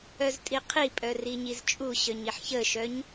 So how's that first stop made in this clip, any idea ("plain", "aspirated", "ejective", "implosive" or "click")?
ejective